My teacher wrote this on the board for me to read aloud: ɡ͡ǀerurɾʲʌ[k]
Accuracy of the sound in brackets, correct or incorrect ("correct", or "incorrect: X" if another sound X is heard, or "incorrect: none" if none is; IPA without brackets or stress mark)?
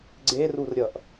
incorrect: ʔ